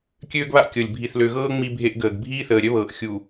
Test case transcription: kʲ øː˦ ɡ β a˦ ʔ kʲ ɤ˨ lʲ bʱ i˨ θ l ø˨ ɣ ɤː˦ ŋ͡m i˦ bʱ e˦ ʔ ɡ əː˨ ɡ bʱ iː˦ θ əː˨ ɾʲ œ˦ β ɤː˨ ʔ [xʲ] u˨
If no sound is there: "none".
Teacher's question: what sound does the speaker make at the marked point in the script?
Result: xʲ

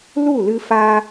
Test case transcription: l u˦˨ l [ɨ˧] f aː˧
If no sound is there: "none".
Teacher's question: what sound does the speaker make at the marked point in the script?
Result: ɨ˧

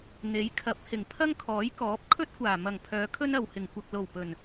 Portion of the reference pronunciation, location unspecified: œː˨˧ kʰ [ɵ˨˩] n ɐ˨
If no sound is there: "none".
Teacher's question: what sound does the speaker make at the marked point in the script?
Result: ɵ˥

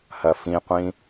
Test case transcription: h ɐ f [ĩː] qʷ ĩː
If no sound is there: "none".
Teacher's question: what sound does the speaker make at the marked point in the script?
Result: ĩ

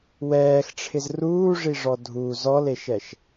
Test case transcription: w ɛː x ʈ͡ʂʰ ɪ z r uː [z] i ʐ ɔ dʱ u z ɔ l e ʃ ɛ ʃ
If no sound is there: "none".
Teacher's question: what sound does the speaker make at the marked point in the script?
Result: ʐ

